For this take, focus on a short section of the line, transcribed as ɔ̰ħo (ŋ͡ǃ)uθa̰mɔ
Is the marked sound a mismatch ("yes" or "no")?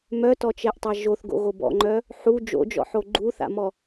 yes